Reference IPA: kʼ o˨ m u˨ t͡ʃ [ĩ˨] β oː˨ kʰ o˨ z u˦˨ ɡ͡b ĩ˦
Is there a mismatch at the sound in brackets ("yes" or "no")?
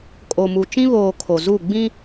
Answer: yes